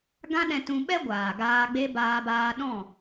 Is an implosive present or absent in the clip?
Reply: present